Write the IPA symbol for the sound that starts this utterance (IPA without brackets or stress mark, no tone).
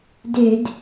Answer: d